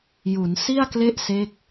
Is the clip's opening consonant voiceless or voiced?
voiced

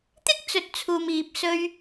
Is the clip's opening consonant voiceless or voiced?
voiceless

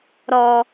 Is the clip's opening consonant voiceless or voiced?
voiced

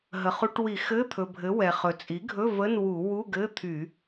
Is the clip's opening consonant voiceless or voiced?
voiced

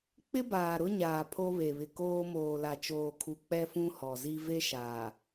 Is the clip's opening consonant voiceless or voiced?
voiceless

